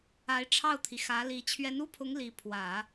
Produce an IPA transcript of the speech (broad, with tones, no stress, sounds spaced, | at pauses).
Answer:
a˧˥ ɪ̯ ʈ͡ʂʰ ɑ˥˩ ʊ̯ t̪ʰ i˩ x ä˧˥ l i˧˥ t͡ɕʰ ɥ ɛ˧˥ n u˥ pʰ ʊ˧˥ ŋ l i˧˥ pʰ w ä˨˩˦